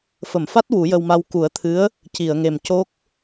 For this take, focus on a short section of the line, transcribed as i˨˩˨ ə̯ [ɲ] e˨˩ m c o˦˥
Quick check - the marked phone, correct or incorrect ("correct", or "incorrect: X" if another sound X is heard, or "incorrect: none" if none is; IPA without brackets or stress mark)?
incorrect: ŋ